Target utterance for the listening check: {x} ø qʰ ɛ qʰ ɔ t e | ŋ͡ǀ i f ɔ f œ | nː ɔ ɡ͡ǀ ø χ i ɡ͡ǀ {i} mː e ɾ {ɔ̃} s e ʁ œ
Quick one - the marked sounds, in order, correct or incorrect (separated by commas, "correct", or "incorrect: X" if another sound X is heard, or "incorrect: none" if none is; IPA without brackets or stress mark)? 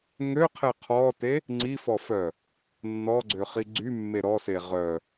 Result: incorrect: ŋ, incorrect: y, incorrect: ɔ